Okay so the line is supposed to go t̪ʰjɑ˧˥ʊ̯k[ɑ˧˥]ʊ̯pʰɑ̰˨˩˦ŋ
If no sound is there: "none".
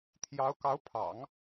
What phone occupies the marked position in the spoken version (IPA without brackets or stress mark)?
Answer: ɑ˧˥